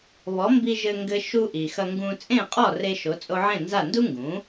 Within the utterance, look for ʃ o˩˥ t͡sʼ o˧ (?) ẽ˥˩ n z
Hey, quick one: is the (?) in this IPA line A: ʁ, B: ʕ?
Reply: B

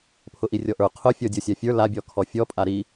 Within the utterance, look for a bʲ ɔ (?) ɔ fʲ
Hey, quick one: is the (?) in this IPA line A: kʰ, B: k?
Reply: A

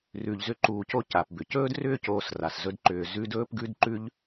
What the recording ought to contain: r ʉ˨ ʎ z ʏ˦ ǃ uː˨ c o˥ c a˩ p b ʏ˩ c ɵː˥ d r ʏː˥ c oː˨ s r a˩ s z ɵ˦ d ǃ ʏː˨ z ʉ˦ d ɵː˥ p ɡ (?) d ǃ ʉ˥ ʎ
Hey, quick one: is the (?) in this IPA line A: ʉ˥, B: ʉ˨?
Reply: A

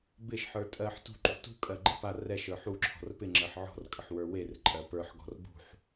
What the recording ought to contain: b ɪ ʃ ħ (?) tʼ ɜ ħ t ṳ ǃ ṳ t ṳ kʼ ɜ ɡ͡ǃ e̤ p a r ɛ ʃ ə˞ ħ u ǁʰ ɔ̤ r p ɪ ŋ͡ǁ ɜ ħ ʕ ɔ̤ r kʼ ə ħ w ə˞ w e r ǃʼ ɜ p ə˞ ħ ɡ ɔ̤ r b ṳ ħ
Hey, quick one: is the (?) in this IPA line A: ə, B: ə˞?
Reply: B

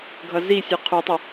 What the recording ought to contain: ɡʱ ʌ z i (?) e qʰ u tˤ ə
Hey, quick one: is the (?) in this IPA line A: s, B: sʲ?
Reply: B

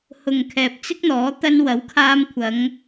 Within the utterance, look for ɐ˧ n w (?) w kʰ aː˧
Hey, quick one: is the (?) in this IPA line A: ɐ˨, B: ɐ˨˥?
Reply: B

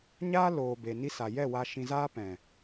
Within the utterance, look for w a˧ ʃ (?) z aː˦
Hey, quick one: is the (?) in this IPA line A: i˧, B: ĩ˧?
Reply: B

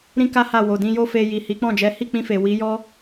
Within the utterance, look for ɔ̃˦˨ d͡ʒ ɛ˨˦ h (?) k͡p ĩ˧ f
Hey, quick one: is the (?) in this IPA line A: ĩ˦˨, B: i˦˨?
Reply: B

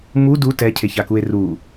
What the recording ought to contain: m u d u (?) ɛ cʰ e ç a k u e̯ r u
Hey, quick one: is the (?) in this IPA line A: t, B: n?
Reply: A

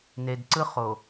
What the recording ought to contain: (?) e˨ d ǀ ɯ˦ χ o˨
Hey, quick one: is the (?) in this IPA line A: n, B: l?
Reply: A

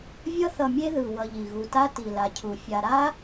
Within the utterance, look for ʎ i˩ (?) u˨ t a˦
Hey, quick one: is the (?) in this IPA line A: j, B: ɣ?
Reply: B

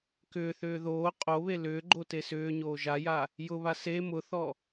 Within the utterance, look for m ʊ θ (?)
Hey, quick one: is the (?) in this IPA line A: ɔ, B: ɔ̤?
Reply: A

